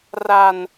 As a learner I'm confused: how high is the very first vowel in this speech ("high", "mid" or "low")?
low